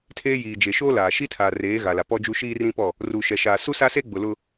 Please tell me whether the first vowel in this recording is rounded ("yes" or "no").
no